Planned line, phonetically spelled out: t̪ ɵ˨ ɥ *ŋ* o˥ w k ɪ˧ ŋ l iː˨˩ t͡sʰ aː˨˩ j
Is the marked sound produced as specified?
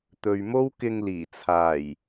no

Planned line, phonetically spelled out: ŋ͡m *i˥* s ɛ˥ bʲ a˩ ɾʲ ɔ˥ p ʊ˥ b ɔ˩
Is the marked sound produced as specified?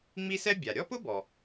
yes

